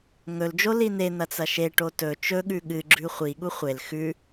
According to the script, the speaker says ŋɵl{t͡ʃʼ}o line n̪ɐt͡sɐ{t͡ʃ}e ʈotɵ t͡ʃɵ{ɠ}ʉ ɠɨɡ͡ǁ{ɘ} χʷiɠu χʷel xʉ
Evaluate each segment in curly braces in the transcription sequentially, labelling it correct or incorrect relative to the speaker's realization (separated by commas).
incorrect, incorrect, correct, incorrect